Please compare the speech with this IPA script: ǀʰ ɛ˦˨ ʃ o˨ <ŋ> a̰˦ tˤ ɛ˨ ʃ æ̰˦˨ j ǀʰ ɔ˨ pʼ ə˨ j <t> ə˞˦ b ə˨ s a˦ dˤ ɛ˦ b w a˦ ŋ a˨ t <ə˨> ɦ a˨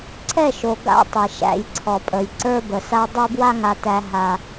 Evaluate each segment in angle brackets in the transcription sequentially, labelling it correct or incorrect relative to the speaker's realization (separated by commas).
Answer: incorrect, incorrect, incorrect